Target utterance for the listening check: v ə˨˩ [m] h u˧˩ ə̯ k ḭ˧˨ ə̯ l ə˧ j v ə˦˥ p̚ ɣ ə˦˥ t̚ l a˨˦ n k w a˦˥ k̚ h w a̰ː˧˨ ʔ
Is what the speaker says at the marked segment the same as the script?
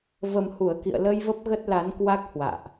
yes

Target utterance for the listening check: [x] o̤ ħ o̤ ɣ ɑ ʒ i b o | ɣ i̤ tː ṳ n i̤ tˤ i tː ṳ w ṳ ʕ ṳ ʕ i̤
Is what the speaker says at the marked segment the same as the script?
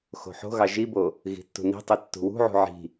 yes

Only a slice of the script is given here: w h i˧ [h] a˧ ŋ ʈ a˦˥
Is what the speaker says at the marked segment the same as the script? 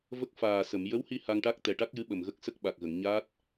yes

